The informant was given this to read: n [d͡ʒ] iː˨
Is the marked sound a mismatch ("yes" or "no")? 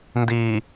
yes